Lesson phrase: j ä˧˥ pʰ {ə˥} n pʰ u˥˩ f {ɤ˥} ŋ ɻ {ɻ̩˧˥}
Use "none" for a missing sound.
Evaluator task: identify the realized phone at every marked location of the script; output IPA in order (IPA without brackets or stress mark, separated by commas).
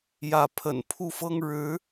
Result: ə̰˨˩, ɤ˥, ɻ̩˧˥